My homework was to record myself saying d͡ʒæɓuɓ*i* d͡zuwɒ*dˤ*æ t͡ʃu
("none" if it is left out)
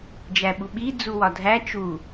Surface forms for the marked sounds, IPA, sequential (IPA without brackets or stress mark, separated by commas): i, dʱ